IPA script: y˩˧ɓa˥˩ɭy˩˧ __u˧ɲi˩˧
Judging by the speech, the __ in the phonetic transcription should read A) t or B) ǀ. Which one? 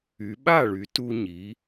A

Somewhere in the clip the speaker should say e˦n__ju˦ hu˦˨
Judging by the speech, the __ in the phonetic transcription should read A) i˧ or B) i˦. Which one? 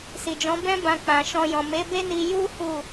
A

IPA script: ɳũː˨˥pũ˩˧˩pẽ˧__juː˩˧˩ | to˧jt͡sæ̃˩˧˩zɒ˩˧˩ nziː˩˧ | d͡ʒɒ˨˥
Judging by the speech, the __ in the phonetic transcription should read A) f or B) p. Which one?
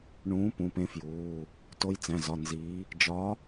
A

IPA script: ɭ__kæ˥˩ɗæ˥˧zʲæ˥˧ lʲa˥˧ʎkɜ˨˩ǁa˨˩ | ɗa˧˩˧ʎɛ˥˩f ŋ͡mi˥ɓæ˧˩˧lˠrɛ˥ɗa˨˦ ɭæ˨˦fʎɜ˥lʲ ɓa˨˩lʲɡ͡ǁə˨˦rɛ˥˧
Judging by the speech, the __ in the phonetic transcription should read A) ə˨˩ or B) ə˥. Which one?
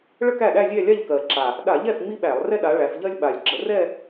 B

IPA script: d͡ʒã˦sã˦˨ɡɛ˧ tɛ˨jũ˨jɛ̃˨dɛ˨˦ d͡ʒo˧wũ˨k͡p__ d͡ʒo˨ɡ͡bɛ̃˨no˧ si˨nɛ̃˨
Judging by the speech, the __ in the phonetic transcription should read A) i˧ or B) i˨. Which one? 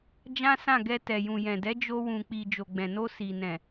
B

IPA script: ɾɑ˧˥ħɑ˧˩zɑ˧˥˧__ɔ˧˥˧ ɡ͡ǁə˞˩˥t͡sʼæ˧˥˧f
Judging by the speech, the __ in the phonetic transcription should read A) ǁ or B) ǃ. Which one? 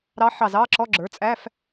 A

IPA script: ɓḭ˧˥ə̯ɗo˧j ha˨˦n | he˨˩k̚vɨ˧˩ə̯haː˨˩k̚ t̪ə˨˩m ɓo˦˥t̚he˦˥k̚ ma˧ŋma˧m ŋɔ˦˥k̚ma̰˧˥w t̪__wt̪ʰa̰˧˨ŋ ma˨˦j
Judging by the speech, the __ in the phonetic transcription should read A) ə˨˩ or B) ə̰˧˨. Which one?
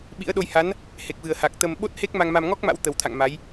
A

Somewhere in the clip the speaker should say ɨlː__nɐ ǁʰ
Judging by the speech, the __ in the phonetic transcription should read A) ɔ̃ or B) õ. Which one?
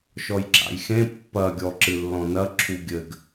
A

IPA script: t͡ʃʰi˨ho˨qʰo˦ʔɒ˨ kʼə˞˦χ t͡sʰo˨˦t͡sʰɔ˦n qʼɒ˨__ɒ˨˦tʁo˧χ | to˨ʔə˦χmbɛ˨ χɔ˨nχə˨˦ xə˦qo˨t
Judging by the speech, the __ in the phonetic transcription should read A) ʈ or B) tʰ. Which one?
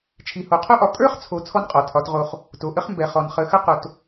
B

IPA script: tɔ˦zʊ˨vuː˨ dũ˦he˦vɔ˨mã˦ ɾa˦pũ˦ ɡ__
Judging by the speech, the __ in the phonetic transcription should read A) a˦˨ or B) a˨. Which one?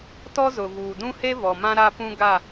A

